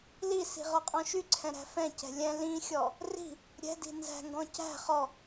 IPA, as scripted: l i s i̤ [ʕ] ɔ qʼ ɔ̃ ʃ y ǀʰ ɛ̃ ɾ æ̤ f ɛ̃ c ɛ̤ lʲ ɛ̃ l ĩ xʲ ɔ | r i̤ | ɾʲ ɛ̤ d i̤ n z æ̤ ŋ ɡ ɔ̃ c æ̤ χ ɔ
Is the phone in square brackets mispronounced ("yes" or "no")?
yes